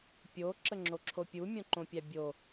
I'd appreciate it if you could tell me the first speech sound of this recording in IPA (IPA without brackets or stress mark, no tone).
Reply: pʲ